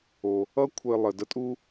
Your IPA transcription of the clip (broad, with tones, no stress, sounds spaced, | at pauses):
o˩ | ʌ˥ kʷʰ ɘ˨ lˠ ə˩ d ə˦ tʼ u˥